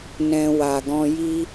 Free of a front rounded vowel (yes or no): yes